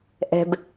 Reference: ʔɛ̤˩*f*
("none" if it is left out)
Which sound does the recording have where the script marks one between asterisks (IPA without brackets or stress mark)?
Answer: b